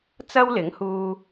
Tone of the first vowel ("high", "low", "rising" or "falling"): high